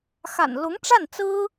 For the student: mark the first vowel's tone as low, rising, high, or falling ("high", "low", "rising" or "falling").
low